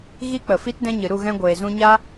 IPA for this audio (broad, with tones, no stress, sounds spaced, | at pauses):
ɣ i˦ k͡p ə˨ f i˦ t d ɛ̃˦ ɲ ɨ˨ ɾ u˦˨ ɣ ɛ̃˧ ɡʷ eː˨ z ũ˧ ɲ a˦